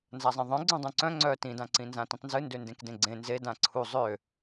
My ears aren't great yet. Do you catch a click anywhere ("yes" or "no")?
yes